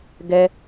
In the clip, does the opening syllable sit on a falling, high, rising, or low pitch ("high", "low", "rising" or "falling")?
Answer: high